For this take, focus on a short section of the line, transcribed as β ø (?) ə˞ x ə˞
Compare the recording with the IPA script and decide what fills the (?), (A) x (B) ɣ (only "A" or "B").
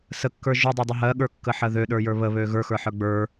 B